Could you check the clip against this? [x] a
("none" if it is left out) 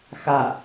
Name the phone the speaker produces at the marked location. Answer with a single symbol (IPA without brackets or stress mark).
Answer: x